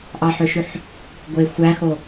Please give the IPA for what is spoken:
ʔ ɑ ħ ø ʃ y ħ | ɡʷ e xʷ æ x o

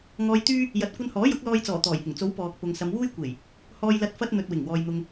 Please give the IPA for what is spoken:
ŋ ɔː˧ j t̪ yː˥ | j ɐ˨˥ t̚ kʷ ɐ˧ n h ɔː˨˥ j ʊ˨˥ k̚ l ɔː˧ j t͡s ɔː˨˩ t̪ ɔː˨˩ j h ɪ˨˩ ŋ t͡s o˨˥ w p ɔː˨ k̚ p ʊ˨ ŋ s ɐ˨˧ m w uː˥ j kʷ e˨˩ j | h ɔː˧ j l ɐ˧ t̚ f ɐ˧ t̚ n̪ ɵ˨ t̚ w ɪ˨˩ ŋ w ɔː˨ j n̪ ʊ˨ ŋ

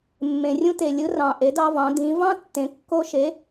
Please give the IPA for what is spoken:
mː ẽ˩ rʲ ũ˧ t e˩ lʲ ɯ˩˧ r ɑ̃˩ ʔ e˩˧ d ɑ˧ v ɑ̃˩˧ d ĩ˩˧ v ɑ̃˥ tː ẽ˩˧ kː o˧ ʃ e˩˧

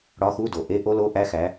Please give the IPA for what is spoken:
ɽ ɒ˧˥˧ x u˧˥˧ d o˨˩ ʔ e˧˥˧ ʔ o˦˥ l o˧˥˧ ʔ æ˦˥ x æ˨˦

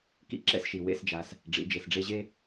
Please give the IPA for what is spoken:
k ḭ˦ ǁ ɛ̰˦ s ʃ i˨ w ḛ˦ s d͡ʒ a˧ s | ɖ͡ʐ ḭ˨˦ d͡ʒ e˨ s ɖ͡ʐ e˧ ʑ e˦

